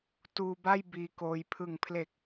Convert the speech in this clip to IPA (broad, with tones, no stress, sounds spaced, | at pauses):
t uː˧ b a˥˩ j b iː˧ k oː˧ j pʰ ɯ˨˩ ŋ pʰ l e˨˩ k̚